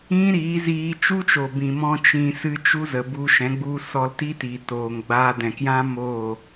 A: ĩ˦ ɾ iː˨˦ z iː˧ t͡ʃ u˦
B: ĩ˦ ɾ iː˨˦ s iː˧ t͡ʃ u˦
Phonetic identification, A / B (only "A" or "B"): A